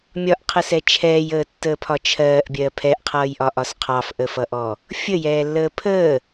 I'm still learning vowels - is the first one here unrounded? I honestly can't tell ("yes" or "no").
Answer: no